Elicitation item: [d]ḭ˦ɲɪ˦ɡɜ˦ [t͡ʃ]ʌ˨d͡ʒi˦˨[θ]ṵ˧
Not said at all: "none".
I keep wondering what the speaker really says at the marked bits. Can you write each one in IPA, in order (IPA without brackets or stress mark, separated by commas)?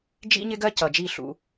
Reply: d͡ʒ, c, ɬ